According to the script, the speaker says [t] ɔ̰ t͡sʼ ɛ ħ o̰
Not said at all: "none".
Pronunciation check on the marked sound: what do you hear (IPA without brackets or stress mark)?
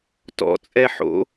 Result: t